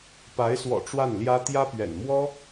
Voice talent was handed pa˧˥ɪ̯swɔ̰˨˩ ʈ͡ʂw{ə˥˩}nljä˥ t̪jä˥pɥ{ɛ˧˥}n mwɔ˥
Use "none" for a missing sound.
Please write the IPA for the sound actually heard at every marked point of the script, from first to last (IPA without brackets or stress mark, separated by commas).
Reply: a˥˩, ɛ̰˨˩